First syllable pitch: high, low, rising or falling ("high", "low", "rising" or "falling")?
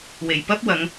low